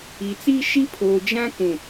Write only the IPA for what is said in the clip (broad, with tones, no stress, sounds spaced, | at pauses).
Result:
i˨ t͡s i˦ ʃ i˦ pʰ oː˨ d͡ʒ ã˦ k ũ˨